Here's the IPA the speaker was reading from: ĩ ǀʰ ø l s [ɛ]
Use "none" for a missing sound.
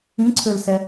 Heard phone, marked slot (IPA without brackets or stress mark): ɛ